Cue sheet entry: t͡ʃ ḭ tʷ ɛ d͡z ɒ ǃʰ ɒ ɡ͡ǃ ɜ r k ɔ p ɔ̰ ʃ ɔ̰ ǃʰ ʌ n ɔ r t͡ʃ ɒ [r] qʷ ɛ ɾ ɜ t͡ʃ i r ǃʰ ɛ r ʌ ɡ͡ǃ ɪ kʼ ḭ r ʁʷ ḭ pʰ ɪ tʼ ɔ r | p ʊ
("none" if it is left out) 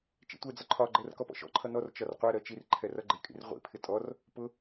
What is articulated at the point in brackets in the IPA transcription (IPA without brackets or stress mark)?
r